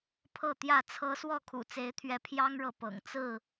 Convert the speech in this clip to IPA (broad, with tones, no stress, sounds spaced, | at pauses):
pʰ ɤ˥˨ t̪ j ä˥˨ t͡sʰ ɤ˦ s w ɔ˥˨ kʰ ṵ˨˩ t͡s e˨˦ ɪ̯ t̪ʰ ɥ ɛ˨˦ pʰ j ɑ˦ ŋ ɻ ɤ˨ p ɤ̰˨˩ ŋ t͡s ɹ̩˥˨